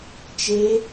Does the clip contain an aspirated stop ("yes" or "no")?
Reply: no